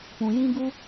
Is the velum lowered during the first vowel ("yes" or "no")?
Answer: yes